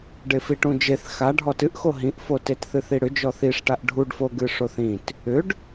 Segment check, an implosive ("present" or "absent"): absent